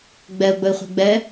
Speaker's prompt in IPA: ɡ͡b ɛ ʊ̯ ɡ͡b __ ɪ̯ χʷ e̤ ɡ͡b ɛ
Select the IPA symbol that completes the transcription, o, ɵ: ɵ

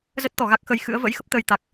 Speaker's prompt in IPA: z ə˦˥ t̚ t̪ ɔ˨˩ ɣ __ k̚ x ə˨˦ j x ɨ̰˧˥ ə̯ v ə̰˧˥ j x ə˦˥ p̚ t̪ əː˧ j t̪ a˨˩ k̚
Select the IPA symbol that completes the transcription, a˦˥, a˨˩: a˦˥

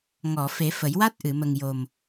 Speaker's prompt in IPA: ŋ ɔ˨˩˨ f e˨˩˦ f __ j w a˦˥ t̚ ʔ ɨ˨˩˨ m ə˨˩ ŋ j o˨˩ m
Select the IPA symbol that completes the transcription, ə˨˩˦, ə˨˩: ə˨˩˦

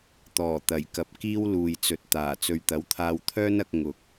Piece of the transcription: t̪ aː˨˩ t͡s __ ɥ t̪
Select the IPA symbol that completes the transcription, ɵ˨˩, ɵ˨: ɵ˨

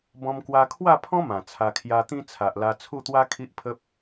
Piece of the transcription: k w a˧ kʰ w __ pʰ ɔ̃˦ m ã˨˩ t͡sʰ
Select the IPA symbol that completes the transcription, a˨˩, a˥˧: a˥˧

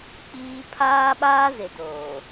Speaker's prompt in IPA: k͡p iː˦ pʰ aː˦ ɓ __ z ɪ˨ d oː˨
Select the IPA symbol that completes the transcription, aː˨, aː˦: aː˦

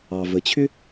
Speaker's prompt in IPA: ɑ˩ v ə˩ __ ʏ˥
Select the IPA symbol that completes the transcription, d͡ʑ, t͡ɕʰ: t͡ɕʰ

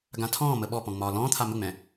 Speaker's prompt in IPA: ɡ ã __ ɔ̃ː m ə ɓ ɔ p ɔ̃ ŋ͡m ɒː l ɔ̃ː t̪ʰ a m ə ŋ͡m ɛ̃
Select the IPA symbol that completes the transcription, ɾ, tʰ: tʰ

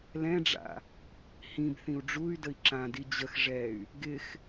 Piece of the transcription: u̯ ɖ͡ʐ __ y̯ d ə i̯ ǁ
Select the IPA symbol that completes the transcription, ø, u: u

